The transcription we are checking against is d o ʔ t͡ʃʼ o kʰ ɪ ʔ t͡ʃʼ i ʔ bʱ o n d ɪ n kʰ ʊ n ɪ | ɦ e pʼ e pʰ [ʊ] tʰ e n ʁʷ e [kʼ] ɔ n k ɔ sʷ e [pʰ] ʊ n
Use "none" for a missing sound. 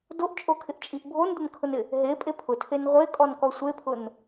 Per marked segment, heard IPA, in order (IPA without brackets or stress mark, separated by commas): ʊ, kʼ, pʰ